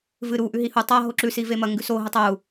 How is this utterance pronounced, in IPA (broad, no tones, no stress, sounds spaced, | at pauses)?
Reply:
v ɨ ɾ u ʔ ʉ ɦ i h u tˤ a ɦ o ǁ ʉ s i v e m ɐ ŋ ɡ ʉ s o ɦ ɨ tˤ o u̯